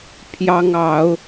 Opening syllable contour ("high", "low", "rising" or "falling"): high